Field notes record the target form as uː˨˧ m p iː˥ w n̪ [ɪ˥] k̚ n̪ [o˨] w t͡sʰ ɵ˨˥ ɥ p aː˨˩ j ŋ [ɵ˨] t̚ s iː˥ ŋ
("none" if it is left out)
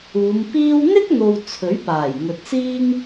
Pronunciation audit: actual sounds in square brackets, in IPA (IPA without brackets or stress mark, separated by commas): ɪ˥, o˨, ɵ˨